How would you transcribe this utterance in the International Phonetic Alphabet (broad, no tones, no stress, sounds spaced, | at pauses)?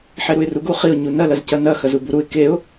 ħ e ɾ u ɪ̯ r u ɡ u χ i ʊ̯ ɲ u n ɐ l ɐ z c ɐ n ɐ x ɐ z u b u ɾ u ɪ̯ k e ʊ̯